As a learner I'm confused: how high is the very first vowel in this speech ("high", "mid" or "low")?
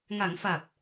low